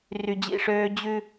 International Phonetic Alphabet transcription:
r y˨ d͡ʑ ḭ˦˨ ʂ øː˦ d͡ʑ ʉ˦

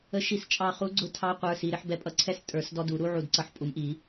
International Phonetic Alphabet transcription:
ə˧˩ ʃ i˨˩˦ s t͡ʃʼ ɑ˧˩ χ u˨˥ ɡ͡ǀ ʊ˨˥ tʰ ɑ˨˥ qʷ ə˞˩˧˩ s i˩˧˩ ɾ ɪ˦ ħ b ɛ˧˩ pʼ ʌ˧˩ ǀʰ ɛ˦ s tʼ ə˞˨˩˦ s d ɔ˦ d u˨˩˦ ɾ u˦ ʕ u˧˩ d ǀ ʌ˨˥ ħ pʼ u˨˩˦ m ʔ i˨˩˦

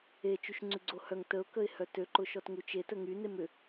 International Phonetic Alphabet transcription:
e t͡ʃ y ʃ ŋ͡ǀ y ɡ͡ǀ o h œ ŋ t ə ʊ̯ k ə ɪ̯ h œ t ø ǃ ʊ ʃ ɔ t ŋ u t͡ʃ e t ə ŋ y n e m ʏ

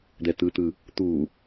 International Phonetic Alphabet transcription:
d̪ ɛ t̪ ɯ t̪ ɯ | t̪ u

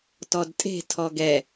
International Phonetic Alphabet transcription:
t ɔ d tʼ e̤ tʰ ɔ ɡ ɛ

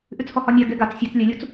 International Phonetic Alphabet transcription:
ʔ ʉ t͡s h ɔ h ɒ nʲ a ɡ ɛ ɡ a t͡s sʲ ɛ t͡s lʲ ɛ lʲ u t͡s

